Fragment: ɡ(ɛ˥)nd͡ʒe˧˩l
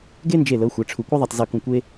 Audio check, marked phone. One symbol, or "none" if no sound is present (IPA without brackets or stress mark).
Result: e˥